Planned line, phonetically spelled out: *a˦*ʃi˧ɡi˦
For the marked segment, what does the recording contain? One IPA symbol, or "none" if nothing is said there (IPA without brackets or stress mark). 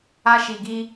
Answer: a˦